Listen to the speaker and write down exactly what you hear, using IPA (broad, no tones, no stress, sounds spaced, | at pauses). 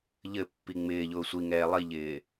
ʎ ɘ pː i ŋ͡m ɪː ʎ ʊː sʷ i ŋ ɛː lˠ i ʎ ɪː